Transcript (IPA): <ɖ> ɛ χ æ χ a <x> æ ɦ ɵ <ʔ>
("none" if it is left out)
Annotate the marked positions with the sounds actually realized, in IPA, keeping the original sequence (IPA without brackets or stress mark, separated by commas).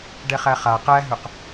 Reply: ɖ, q, q